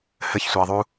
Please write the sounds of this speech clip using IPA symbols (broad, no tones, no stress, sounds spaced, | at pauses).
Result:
h ɘ ç sʷ e ɐ̯ ðˤ u